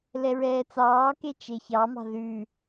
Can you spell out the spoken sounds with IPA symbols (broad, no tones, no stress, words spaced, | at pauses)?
lɛɹɛːt͡sɑːke t͡ʃeçɑmɑ̤ ðʉ